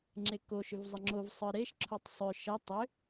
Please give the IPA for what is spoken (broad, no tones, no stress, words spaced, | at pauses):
ŋ͡ǁeko ʃʏvzˤəŋ͡ǁov sˤɯɾeʃ ǁʰotˤsˤʏ ʃə tˤʏ